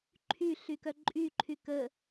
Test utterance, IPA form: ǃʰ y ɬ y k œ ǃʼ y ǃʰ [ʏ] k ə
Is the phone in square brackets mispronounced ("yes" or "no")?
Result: yes